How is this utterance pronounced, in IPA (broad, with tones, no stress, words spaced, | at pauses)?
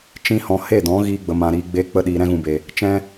t͡ʃĩ˦hɔ̃˧ he˦˨dɔ̃˨˦ ɣiː˧ɡ͡bə˨mã˨ɾiː˨ ɡ͡beː˧k͡pə˧ ɗiː˨ɾɛ̃˧ɣũ˨be˨ | t͡ʃɛ̃˦